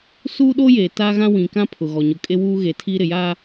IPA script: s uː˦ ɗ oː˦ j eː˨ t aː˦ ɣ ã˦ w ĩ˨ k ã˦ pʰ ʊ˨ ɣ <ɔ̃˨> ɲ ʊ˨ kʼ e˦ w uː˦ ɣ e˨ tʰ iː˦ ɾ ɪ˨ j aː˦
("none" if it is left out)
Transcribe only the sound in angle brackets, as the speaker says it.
ɔ˨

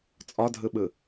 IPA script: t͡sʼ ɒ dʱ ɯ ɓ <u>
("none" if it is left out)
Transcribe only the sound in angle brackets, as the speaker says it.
ɯ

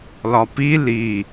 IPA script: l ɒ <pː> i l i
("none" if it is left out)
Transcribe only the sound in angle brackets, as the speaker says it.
p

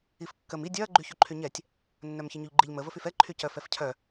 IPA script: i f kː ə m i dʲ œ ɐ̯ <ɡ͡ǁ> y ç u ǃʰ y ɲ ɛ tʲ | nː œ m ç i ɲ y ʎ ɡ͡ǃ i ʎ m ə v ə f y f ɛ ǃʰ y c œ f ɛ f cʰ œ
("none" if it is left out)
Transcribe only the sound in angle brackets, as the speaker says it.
ɡ͡ǃ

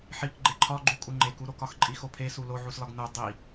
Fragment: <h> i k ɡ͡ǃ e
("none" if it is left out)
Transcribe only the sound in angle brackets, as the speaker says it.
ħ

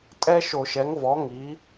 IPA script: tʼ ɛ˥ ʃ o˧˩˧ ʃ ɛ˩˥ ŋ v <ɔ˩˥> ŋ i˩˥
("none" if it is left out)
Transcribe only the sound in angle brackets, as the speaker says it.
ɔ˩˥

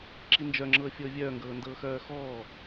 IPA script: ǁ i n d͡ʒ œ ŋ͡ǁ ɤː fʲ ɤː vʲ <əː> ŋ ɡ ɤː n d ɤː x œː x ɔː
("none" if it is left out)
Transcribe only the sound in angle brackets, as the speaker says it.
œː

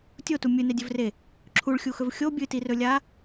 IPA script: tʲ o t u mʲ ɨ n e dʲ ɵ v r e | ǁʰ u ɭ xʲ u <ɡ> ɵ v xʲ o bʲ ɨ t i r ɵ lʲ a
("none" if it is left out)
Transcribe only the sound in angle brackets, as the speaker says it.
x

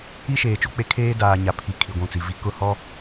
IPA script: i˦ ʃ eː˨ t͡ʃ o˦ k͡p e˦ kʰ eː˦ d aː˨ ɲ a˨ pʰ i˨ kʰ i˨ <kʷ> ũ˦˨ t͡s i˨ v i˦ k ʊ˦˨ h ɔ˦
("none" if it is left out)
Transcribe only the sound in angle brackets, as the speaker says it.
ɡʷ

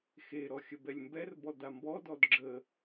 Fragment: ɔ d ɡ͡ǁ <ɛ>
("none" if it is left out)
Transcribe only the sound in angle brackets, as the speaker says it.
ə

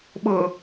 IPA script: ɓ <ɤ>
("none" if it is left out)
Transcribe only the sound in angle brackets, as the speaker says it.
ɤ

